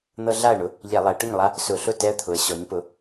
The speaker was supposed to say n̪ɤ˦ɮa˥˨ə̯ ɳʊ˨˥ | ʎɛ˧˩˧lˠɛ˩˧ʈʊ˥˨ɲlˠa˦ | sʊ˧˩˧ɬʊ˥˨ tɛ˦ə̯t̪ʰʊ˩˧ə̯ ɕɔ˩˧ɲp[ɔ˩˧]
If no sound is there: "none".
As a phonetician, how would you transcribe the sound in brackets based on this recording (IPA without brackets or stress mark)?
ʊ˩˧